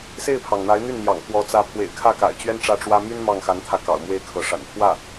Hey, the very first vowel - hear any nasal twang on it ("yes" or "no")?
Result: no